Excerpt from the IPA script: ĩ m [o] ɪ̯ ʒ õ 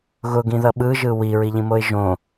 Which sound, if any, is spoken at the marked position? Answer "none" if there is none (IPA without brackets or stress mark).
o